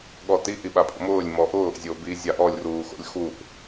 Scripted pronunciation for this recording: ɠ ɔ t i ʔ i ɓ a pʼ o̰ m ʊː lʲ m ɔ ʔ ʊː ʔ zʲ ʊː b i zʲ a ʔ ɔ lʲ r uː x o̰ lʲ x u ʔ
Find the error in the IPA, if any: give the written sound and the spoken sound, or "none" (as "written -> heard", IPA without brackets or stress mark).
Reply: none